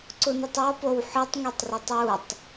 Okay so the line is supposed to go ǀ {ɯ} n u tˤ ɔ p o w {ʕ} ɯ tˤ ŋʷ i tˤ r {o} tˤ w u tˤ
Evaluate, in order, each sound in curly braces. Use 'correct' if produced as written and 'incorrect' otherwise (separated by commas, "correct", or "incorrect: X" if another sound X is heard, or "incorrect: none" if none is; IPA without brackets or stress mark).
incorrect: u, incorrect: ħ, incorrect: ɤ